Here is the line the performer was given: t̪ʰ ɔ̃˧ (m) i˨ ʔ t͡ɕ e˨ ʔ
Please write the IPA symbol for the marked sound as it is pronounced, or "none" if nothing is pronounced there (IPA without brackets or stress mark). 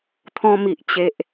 m